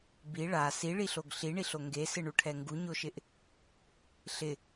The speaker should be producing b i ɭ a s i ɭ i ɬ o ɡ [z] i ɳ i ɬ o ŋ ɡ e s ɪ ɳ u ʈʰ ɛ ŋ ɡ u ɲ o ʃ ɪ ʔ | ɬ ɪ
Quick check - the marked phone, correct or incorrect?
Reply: incorrect